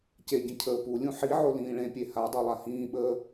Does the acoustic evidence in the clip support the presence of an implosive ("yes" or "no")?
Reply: yes